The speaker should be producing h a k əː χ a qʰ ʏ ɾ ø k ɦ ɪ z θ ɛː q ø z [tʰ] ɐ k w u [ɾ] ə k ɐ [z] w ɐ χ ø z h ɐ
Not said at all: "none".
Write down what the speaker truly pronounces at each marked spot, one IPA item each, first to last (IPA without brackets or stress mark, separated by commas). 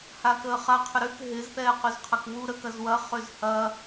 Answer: qʰ, ɾ, z